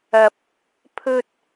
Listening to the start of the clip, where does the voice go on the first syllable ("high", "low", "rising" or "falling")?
low